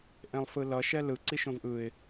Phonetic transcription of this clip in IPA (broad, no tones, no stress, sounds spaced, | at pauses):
ʔ ẽ lˠ f ɯ l ʌ ʃ ɛ l ɯ ǀ i ʃ õ v ʔ ɯ ɪ̯